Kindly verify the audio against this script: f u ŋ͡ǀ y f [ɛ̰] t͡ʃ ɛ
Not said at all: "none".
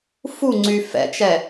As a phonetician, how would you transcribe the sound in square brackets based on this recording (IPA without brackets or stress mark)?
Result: ɛ̰